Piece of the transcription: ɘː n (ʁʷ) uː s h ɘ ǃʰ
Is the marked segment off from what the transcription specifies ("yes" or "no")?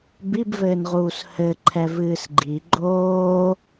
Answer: yes